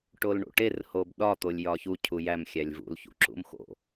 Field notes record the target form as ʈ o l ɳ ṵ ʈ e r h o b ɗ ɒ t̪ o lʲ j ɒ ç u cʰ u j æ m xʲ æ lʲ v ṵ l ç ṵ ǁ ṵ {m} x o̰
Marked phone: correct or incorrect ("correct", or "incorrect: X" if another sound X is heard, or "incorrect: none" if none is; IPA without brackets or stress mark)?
correct